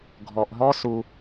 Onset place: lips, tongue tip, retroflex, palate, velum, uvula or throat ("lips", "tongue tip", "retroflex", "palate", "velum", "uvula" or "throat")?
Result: velum